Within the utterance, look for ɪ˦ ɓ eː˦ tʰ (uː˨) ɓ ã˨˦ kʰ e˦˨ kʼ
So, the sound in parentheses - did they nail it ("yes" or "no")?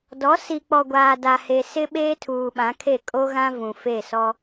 yes